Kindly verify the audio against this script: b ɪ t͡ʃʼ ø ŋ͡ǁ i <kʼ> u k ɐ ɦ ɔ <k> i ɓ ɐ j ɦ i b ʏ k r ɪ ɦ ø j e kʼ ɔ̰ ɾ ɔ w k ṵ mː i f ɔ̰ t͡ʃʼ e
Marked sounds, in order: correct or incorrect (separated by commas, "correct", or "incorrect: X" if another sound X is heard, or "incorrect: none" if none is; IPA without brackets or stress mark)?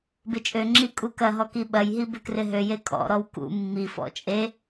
correct, correct